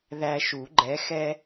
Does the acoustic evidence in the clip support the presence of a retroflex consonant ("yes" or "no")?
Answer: no